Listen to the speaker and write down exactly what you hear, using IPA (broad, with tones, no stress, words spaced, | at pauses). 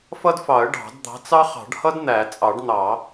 fʌ˥dfɑ˨˩˦ə̯ ɖɑ̤˨˩˦d d̪ɑ̤˨˥t͡sɑ˥χɑ̤˨˩˦ɖhʌ˥d n̪æ˨˩˦ t͡sʼɑ˨˩˦ɖn̪ɑ˨˩˦